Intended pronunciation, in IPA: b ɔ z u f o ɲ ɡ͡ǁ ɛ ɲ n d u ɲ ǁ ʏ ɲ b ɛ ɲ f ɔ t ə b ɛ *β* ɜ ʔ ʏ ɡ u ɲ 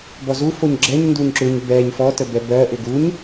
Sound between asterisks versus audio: incorrect: b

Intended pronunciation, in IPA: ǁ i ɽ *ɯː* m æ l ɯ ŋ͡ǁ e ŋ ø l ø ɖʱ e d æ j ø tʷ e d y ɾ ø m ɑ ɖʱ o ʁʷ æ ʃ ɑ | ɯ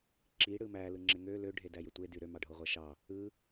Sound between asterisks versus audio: incorrect: ɯ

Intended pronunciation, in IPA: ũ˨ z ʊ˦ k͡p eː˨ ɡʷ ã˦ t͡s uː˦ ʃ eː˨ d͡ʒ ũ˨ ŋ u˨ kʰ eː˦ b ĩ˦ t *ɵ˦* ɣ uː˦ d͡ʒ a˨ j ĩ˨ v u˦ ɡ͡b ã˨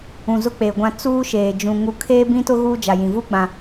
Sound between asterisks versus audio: incorrect: ʊ˦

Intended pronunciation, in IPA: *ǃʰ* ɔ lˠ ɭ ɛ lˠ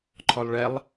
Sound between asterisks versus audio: correct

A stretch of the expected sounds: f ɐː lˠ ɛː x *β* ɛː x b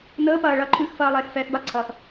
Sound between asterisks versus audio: incorrect: f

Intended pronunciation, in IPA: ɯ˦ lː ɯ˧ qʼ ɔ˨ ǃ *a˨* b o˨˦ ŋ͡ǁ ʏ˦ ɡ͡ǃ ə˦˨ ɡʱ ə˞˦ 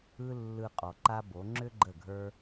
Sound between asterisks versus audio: incorrect: a˦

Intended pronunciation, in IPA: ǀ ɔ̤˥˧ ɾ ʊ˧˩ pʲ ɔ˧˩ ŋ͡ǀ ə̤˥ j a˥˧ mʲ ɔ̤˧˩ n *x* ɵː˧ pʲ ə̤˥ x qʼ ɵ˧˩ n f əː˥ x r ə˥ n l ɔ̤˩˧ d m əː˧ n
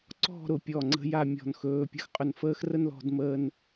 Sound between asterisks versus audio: correct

